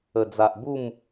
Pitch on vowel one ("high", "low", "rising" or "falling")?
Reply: low